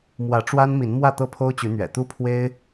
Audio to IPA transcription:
m w ä˨˦ ʈ͡ʂ w a˦ n m i˨˦ n m w ä˥˨ t̪ ɤ˥˨ pʰ o˦ ʊ̯ t͡ɕ y˨˦ n̪ ɥ ɛ̰˨˩ t̪ u˦ pʰ w e˦ ɪ̯

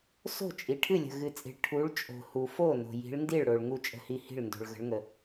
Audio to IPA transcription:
s o̤˥˩ t͡ʃʼ i˨ ʈʰ ɨ˥˩ lʲ ə̤˨ ɣ ɨ˨ t͡sʼ i̤˨ ɭ ʈʰ u˨˦ ɭ t͡ʃʼ o̤˨ h u˨ f o˥˩ n o̤˨ j i̤˨˦ ɭ n d i˥˩ ɭ ɽ o˨ ɭ ŋ u˥˩ t͡ʃʼ ə̤˥˩ h i˥˩ h i̤˥˩ ɭ n d o̤˨ ɭ ɣ ə̤˨˦ ɭ ŋ ə˨

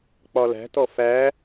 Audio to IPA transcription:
k͡p ɒ l æ̤ t ɔ f æ

